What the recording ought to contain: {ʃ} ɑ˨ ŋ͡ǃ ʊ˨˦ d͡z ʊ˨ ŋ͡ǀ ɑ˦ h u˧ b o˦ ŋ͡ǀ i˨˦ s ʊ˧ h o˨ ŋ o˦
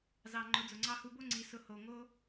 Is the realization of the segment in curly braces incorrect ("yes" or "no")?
yes